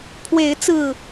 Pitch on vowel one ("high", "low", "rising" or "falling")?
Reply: rising